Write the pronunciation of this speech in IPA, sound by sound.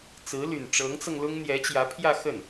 t͡s ɹ̩˧˥ l y˨˩ n ʈ͡ʂ ɤ˧˥ ŋ t͡s ɤ˧ ŋ l ʊ˥ ŋ n̪ j ɛ˧˥ t͡ɕ j ä˧˥ pʰ j ä˥˧ x ə˥˩ n

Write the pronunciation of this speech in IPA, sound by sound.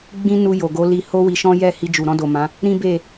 ɡ͡b ĩ˦ n u˧ j o˨ ɡ o˨˦ l i˧ h o˦ w i˧ ʃ ɔ̃˦ j ɛ˦˨ h i˧ d͡ʒ u˨ ɾ ɔ̃˧ d o˨ m ã˨˦ | ɾ ĩ˦ b e˦˨

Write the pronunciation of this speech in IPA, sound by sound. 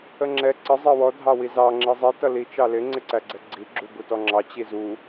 ə ŋ͡ǁ ɛ ǀ ə zˤ ɜ w ɔ dʱ ɑ w i z ɑ ŋ͡ǁ i zˤ i t ʌ l i t͡ʃ ɑ l ɪ ŋ͡ǀ ɪ ǀ æ ɡ͡ǀ ɛ ɡ͡ǀ i ɡ͡ǁ u b u t ɔ ŋ͡ǁ ɑ t͡ɕ i z u

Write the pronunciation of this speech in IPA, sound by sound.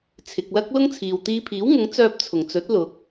t͡sʰ ɪ˨ k̚ l ɐ˥ k̚ l ʊ˥ ŋ t͡sʰ iː˨ w t̪ iː˧ pʰ iː˨˥ w ŋ ʊ˨˥ ŋ t͡s œː˧ p̚ t͡sʰ ʊ˨˩ ŋ t͡s ɵ˨˥ t̚ l ʊ˨˥ k̚

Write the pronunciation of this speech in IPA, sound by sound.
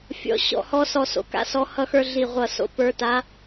fʲ ɔ̰˧˥ ɕ ɔ̰˥˧ h ɔ˥ s ɔ˥˧ s o̰˧˥ k a̰˥ s ɔ˧˥ h ʌ˥ x ə˞˥ ɮ i˥˧ ʁʷ ʌ˥˧ s o̰˥ p ə˞˧˥ t a˧˥

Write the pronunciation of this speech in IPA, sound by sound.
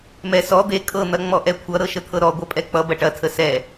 m ɛ s ɔ d̪ e kʼ ɤ n̪ ɐ ŋ͡m ɔ ʔ ɛ kʷʰ ʌ ɾ ɤ ʃ ə t̪ʰ ɤ ɾ ɔ ɡʷ ɐ pʼ ɛ k͡p ʌ b ɐ ʈ ɐ tʰ ə s ɛ

